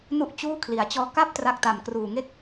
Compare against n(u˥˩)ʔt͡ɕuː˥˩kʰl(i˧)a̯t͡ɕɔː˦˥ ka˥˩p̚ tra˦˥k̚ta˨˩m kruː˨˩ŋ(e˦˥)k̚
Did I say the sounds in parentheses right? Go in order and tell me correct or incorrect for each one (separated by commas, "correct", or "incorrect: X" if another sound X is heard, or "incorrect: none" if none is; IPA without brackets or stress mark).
correct, incorrect: i˩˦, incorrect: e˥˩